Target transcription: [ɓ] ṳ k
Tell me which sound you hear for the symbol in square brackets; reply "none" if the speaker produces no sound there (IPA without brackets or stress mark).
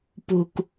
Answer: p